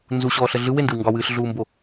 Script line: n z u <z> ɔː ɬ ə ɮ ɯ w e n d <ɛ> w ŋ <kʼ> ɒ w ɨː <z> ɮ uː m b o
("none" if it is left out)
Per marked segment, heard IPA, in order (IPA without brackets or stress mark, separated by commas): ɕ, ɨ, ɡ, ɬ